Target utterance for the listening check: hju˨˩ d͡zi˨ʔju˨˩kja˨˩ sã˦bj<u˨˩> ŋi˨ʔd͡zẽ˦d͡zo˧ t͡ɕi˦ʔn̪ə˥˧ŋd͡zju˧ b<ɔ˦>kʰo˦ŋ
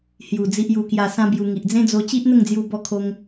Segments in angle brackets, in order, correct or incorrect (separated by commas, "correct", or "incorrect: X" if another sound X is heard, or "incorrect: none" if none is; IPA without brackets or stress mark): incorrect: u˧, correct